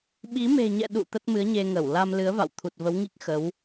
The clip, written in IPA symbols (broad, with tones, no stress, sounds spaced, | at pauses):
ɓ i˨˦ m e̤˨˩ ɲ ɛ̰˧˨ ɗ ṵ˧˨ t̪ ə˦˥ t̚ m ɨ˨˦ ə̯ ɲ e˧ ŋ ə˧˩ w l a˧ m l ɨ˨˦ ə̯ v a̰˧˨ w t̪ʰ u˨˩ t̚ v ə˨˦ w ŋ i˦˥ k̚ x ə˨˦ w